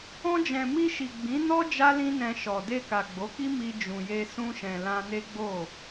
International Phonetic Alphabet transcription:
ɔ̃˧d͡ʒɛ̃˨ mi˧ʃi˨ ɡ͡bĩ˨˦nɔ˦ d͡ʒa˦lĩ˦nɛ̃˧ ʃɔ˨ de˧ka˨ ɡ͡bo˨˦ki˦ mi˧ d͡ʒũ˨je˧ sũ˧ʃɛ̃˨ lã˧ne˦ɡ͡bo˦˨

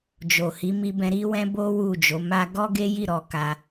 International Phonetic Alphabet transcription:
d͡ʒo˨ hi˨˦mi˧bɛ̃˧ ɾi˧wɛ̃˧ bo˦wu˦˨d͡ʒo˨˦ma˦ ɡɔ˦ɡe˦ji˦˨ ɾɔ˧ka˧

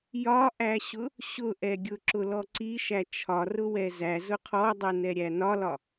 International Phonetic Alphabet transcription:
jɒʔæɕʊ | ɕʊʔɛɡʲʊ ǁʊlɔǀiʃæ t͡ʃʰɒrʊ wɛzæ zʊqʰɔdˤɛ nɛɾʲænɒlɒ

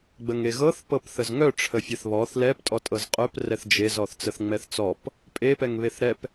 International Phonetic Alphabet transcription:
ɡ͡bəŋeɣɤθ pɤpθəzŋœ ʈ͡ʂʰəfʲɛθβɔθ lɛp tʼɔtʼɤzqʼœp rɛθd͡ʒez ɔθt͡səθŋ͡mɛθt͡sɔp | pʼe pɛŋβeθɾɛp

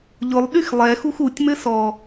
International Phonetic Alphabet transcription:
ʎʊlˠɗyx lˠɛxux utʲmɘ sɔ

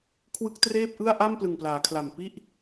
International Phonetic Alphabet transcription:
kʰwɯ˦˥k̚treː˥˩p̚ʔɯ˥˩a̯ ʔa˥˩mplɯ˨˩ŋplaː˩˦kʰla˨˩m pi˥˩ʔ

